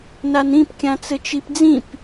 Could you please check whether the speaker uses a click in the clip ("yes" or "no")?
no